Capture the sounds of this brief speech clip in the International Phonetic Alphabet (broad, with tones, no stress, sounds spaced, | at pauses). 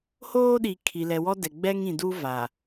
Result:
h oː˦ ɗ i˨ kʰ i˨ l ɛ˨ w ɔ˦ d ɛ˨ ɡ͡b ɛ˦ ŋ ĩ˨ d u˦ v a˨